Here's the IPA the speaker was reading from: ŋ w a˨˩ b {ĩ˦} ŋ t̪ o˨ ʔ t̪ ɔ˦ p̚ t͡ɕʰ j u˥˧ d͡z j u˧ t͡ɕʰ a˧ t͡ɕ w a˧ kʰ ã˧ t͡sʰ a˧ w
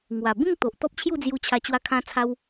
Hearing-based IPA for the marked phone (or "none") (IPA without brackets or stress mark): ĩ˥˧